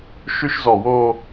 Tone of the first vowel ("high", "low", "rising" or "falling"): high